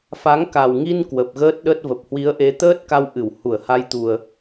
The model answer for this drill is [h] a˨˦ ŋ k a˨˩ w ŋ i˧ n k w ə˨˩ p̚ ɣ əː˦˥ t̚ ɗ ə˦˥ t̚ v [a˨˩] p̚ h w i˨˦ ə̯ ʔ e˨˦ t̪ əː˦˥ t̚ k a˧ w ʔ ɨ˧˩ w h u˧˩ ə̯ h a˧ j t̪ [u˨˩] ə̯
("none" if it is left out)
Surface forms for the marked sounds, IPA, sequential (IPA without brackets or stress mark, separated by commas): f, ə˨˩, u˨˩